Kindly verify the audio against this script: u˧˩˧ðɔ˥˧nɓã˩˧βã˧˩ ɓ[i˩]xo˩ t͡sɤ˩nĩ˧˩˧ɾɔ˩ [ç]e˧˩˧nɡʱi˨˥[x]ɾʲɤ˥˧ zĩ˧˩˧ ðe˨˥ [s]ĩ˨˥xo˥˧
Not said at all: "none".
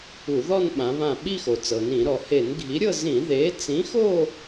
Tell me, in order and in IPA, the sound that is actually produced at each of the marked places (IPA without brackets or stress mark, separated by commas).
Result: i˥˧, h, none, t͡s